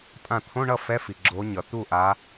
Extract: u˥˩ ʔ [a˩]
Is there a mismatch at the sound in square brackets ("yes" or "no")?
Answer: yes